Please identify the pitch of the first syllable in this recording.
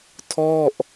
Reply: falling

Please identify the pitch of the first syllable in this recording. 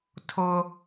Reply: high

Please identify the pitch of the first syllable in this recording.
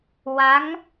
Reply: rising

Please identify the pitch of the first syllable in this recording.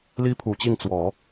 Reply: high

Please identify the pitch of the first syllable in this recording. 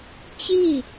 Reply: falling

